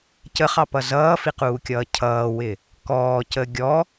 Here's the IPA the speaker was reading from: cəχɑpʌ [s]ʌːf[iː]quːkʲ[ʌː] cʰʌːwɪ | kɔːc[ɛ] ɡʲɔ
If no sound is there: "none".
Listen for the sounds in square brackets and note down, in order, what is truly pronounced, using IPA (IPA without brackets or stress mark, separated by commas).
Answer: z, i, ʌː, ə